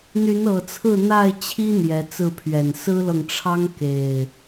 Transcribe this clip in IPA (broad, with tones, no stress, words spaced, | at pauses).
n̪y˨˦nɤ˨˩t͡sʰɹ̩˥˨ n̪a˥˨ɪ̯t͡ɕʰi˦ n̪jɛ˨˦t͡sɹ̩˥˨pʰɥɛ˨˩n sɹ̩˦lɤ˨ŋʈ͡ʂʰɑ˦ŋ ke˨˩ɪ̯